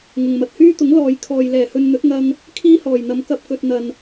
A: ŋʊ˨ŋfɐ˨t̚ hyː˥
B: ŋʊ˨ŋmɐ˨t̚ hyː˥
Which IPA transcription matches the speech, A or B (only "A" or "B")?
B